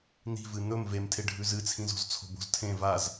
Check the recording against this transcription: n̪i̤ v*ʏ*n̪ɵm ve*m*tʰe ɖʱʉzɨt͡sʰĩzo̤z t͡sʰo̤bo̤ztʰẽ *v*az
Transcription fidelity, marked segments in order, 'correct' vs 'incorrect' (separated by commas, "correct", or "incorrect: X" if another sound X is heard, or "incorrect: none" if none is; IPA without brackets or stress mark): incorrect: ɨ, correct, correct